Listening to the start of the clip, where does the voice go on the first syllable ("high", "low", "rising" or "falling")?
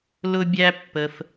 high